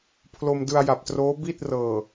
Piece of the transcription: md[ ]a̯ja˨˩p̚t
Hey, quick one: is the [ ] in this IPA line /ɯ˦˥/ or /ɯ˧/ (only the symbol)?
ɯ˧